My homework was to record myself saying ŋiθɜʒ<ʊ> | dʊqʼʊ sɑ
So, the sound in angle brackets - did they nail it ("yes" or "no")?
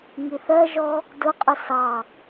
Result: no